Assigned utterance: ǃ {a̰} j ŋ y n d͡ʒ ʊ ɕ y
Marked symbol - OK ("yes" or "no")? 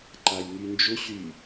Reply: no